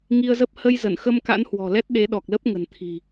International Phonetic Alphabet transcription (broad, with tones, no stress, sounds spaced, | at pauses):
ŋ i˧ ə̯ z ə˦˥ p̚ h ə˧ j z ə˧˩ n x ə˧ m k a̰˧˥ n h w ɔ̤˨˩ l ɛ˦˥ t̚ ɗ e˨˦ ɗ ɔ˨˩ k̚ l ə˦˥ p̚ ŋ ə̤˨˩ n t̪ʰ i̤˨˩